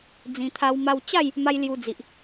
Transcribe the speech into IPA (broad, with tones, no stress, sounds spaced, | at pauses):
d͡z ĩ˨˩ t̪ʰ a˧ w m a˧ w t͡ɕ a˥˧ j | m a˦ j l j u˧ d͡z i˨ ʔ